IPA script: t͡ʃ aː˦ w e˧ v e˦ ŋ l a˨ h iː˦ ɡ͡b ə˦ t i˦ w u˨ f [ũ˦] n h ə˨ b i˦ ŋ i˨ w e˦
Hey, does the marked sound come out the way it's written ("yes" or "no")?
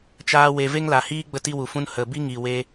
yes